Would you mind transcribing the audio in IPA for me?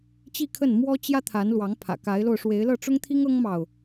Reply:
t͡ɕi˥˧kʰə˥˩n mwɔ˥t͡ɕjä˥t̪ʰa˧˥n lwɑ˧˥ŋ pʰä̰˨˩ka˧˥ɪ̯lo˧ʊ̯ ʂwe˧˥ɪ̯lɤ˥˩ʈ͡ʂʊ˥ŋt̪ʰi˥ŋ ɤ˥ŋmɑ˨ʊ̯

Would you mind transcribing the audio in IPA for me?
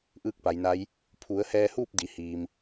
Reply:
ʔɯː˥˨k̚pa˩˧jna˧˥j | pʰu˩˧ə̯hɛː˧huː˥˨p̚ di˩hiː˩m

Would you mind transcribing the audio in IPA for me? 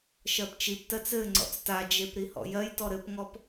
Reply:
ʃɜpt͡ʃiptɜt͡s ɘ ŋ͡ǀɔ̰t͡stad͡ʒep ɾihɔ̰jɜjtɔ ɾɘpŋɔp

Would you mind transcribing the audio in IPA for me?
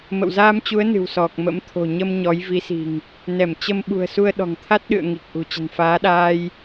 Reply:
mə̰˧˨wzaː˧mt͡ɕu˨˦ə̯ nɨ̤˨˩wsɔ˨˩k̚mə̰˧˥m t̪ʰo̤˨˩ɲə˧m ɲɔ˨˦jvi˨˦si̤˨˩ŋ | nɛ˧˩mt͡ɕə˧m ɓṳ˨˩ə̯su˧ə̯ɗɔ̤˨˩ŋt̪ʰa˦˥t̚ ɗɨ̰˧˨ə̯ŋi˨˩k̚ ʔṳ˨˩t͡ɕə̤˨˩nfaː˨˦ɗaː˧j

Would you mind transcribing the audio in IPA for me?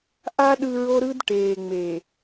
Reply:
ʔa˦ ɗɯ˦ɹo˦ɾɯ˦d ʈeː˨ŋ͡me˨

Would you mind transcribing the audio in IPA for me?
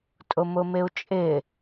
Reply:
tʼʊmʊmɪu̯t͡ʃʼɪ

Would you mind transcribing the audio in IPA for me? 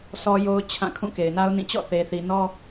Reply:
sʰɔ˦jo˦ʊ̯t͡ɕʰã˦˨ kʰũ˦˨ke˨ɪ̯na˦ʊ̯nĩ˦˨ t͡ɕɔ̰˦˨θe˨θi˨nɔ˦

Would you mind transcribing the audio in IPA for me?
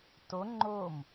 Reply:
to ŋ͡ǃom

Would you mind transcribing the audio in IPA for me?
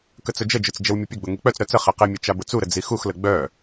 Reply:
kət͡sʊd͡ʒəd͡ʒʊt͡s d͡ʒəwmʲʊpʲʊɡ͡bʊ ŋik͡pœt͡sɾœ t͡sə χeqemʲœ t͡ʃabʊt͡suɾə d͡zixuxlə ɡ͡bœ

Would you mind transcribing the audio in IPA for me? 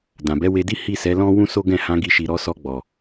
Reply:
dã˨bɛ˨˦we˧di˦ hi˦˨sɛ˨˦lɔ̃˦ wũ˦so˦ɡɛ̃˦˨ hã˨˦ɡi˧ʃi˨ ɾɔ˧sɔ˧ɡ͡bɔ˨

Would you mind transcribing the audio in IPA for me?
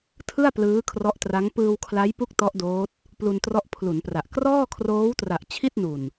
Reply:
tʰɯ˥˩a̯ plɯː˦˥kʰrɔ˦˥ʔtra˦˥ŋ pɯː˧wkʰla˦˥jpu˦˥k̚ tɔ˦˥ʔdoː˦˥t̚ | plu˧ntrɔ˦˥ʔpʰlu˩˦npra˨˩ʔ krɔː˥˩kʰroː˦˥wtra˨˩ʔ t͡ɕʰi˥˩t̚nu˨˩n

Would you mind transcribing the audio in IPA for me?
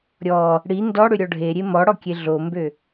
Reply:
ɾʲɔ | ɽi ndɔɽʏ ɾʲɔɖʱeɾʲe mɔɽɔ kʲeɮombø

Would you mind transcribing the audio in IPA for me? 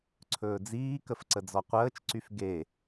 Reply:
ǀʰɵːd͡ziːkəf ǀəd͡zɔqʷəːt͡ʃǀyf ɡe

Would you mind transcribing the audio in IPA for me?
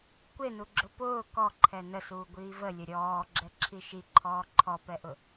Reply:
kʷenuɡ͡ǁʊ pʊː kɔǃʰɛ nəsuːɡʷiː vəlʲə ɾʲɔːɡ͡ǁɛǁʰi ʃiǃʰɔː ǃʰɔpɛʔʊ

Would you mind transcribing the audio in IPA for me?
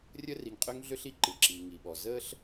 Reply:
rʲə˦ri˨ŋqʼø˦ŋɮø˦ɬ i˥ǃɨ˩ǁiː˩ ŋi˩ɓɔ˩ zəː˦ɬ

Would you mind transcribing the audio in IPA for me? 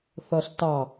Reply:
θʌɬtɑ

